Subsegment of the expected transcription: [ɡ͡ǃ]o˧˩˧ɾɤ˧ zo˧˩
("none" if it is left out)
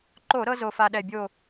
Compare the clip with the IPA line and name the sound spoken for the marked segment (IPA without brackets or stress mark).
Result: ǃ